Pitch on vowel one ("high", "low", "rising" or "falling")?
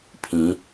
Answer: rising